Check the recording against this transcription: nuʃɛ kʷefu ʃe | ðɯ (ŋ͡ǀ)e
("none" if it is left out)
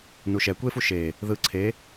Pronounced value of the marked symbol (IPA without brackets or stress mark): ǀʰ